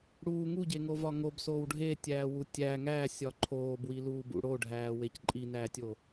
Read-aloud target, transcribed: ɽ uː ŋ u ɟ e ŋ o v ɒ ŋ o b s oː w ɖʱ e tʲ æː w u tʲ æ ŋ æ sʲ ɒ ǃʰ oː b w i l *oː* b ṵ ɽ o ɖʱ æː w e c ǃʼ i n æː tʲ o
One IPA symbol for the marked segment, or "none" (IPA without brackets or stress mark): uː